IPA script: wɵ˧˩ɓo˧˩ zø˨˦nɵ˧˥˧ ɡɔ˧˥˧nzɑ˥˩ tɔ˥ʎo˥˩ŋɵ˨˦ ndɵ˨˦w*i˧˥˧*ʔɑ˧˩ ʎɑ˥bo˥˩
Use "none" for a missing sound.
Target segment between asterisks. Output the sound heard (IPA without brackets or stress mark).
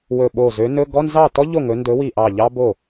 i˧˩